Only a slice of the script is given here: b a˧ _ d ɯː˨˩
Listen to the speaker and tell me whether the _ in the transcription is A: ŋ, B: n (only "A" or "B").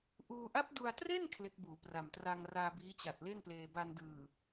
B